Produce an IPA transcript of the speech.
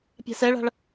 pʲ a̤ s ɛ ɭ a̤ ɭ

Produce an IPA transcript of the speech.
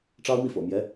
ʈ͡ʂ ɑ˥ ʊ̯ m i˥˩ f ɤ̰˨˩ m j ɛ˧˥

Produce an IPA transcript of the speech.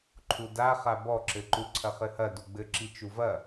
ǃʰ u d a χ a b ɔ ǁ ɘ ǃ u ǀʰ ɐ χ ɘ h ɐ d u ɡ͡b ɘ ǁ i t͡ʃ u v ɐ

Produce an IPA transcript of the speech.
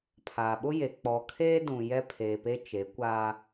pʰ aː˨ ɓ ʊ˦ j e˨ k͡p ɔ˨ kʰ eː˦ d ũ˨ j ɛ˦ pʰ eː˨ p e˦ t͡ʃ e˨˦ kʷ a˦

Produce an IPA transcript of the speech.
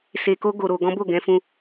s e˧ k o˦ ɡ o˧ ɾ o˧ ɡ ɔ̃˦ b o˦˨ ɡ ɛ̃˧ f ũ˧

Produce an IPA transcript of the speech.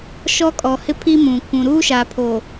ʃ ɔ˦ kʼ ɔ˨ h ɪ˦ pʰ i˦ m ũ˨ kʷ ũ˨ ɾ uː˦ ʃ a˨ pʰ o˨

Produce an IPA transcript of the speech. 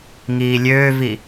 ŋ iː lʲ øː v i

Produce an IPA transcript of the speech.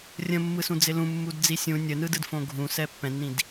rʲ ə̃ mː ɯ s ũ d͡z ɪ l ũ mː u d d͡z i sʲ ũ nʲ ə n ɯ d ɯ d f õ ɡʱ ũ s ɛ pː ɛ̃ nː ĩ d

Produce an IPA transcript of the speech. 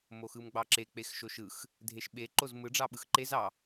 m o x ɯ m ɡ͡b ɑ ǁ e k͡p e x ʃ o ʃ ɯ x | dʱ e ʃ ɓ e ǃ o z m ɯ ɖ͡ʐ ɑ ɓ ɯ x ǃ e z ɑ

